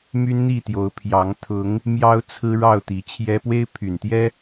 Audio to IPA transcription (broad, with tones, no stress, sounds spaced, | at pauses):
m y˦ n n̪ i˥˨ t̪ j o˨˦ ʊ̯ pʰ j ɑ˨˦ ŋ t̪ʰ ʊ˨˦ ŋ | m j ɑ˦ ʊ̯ t͡sʰ ɹ̩˦ ɻ ɑ˥˨ ʊ̯ t̪ i˨˦ t͡ɕʰ j ɛ˦ p w e˦ ɪ̯ pʰ y˨˩ n t̪ j ɛ˦